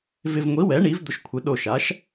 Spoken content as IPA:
v ɪ˨ v ŋʷ i˩˥ w ɛ˩˥ ɳ i˩˥ v d̪ ʊ˨ ʃ kʷʰ ɪ˩˥ ɗ o˨ ʃ a˩˥ ʃ

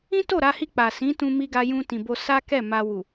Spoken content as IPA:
ĩ˦ t o˦˨ ɾ a˧ h i˧ k͡p a˨ s ĩ˨˦ t ũ˧ m i˧ ɡ a˧ j ũ˧ t ĩ˨ b o˧ s a˦ k ɛ˦˨ m a˧ w u˨

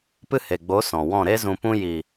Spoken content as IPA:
p ɨ˦ h e˨ ɡ͡b o˨˦ s ɔ̃˨ w ɔ̃˦˨ ɾ e˦ z ũ˧ p ũ˦ j i˨

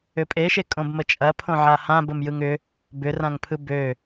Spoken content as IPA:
ʏ pʼ e ʃ e kʼ õ b m ə t͡ʃʼ ɐ pʰ õ ʕ a h ã b ə m j ɯ ŋ ʏ | b ʏ r ã ŋ pʰ ɯ b ø

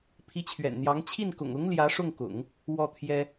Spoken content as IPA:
pʰ i˧˥ t͡ɕʰ ɥ ɛ̰˨˩ n n̪ j ɑ˧˥ ŋ t͡ɕʰ i˥˩ n k ʊ̰˨˩ ŋ ʊ˧˥ ŋ l j ä˧˥ ʂ ʊ˥˩ ŋ k ʊ̰˨˩˦ ŋ | w ɔ˥˩ t̪ʰ j ɛ˥

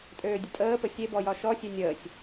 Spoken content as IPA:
tʼ øː dʲ ə tʼ əː p ə sʲ e b ɔ j ɒ ʃ ɔ sʲ ø nʲ əː sʲ

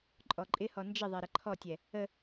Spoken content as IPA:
ǃʼ ɔ ǃʼ ɪ h ɔ n d͡ʒ ɪ ðˤ ɛ ɾ ə ǃʰ ɔ tʲ ɛ | ə

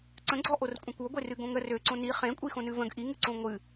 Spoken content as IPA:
ǀ ə̃ ɡ͡ǀ ɔ ʔ o r kʷʼ ẽ kʷ o ɡʷ e r ɨ ɡ õ ŋ ə r ø ǀ õ n i χ ẽ kʷʼ i x õ n ɨ v ə̃ ɡ ʔ i ŋ ɨ ǀ õ ŋʷ ɨ

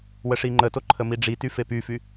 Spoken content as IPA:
w ə ʂ i ŋ͡ǃ ə t o ǃʰ ə m i ɖ͡ʐ i t y f e p y f y

